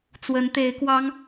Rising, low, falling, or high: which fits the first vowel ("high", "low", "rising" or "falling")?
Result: rising